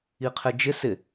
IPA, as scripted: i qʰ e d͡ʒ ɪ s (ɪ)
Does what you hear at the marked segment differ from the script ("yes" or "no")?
no